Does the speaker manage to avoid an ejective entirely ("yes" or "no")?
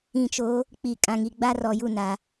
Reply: no